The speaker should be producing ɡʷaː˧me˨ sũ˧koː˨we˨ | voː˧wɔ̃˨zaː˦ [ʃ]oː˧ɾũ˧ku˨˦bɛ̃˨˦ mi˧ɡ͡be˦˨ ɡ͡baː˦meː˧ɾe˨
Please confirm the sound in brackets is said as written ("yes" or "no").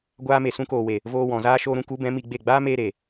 yes